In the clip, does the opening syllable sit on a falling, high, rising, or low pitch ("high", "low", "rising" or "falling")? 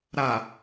low